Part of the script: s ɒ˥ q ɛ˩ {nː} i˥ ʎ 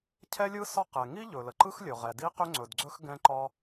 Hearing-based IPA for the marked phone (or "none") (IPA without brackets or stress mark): ŋ